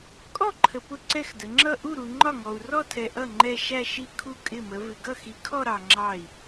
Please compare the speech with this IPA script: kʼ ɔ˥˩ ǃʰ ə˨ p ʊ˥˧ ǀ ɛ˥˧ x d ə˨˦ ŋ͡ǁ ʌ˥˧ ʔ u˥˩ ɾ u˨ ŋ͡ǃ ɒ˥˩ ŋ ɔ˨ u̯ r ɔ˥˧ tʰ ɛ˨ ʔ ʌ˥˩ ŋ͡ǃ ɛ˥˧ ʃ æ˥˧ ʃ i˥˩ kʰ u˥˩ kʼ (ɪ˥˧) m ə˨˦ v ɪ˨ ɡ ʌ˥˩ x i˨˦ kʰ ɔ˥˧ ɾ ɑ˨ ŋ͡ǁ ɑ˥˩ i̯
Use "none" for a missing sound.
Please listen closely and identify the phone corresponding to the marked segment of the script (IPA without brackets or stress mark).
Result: ɪ˥˩